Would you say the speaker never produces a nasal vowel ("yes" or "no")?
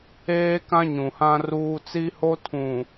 no